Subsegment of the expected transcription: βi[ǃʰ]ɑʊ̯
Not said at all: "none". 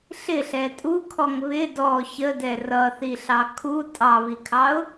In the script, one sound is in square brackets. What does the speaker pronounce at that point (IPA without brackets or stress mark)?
kʰ